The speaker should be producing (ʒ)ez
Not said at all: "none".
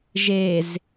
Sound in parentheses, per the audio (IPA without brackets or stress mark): ʒ